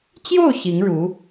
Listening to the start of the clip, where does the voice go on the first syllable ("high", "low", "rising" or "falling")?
falling